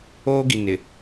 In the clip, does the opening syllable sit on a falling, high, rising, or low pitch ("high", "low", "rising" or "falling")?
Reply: high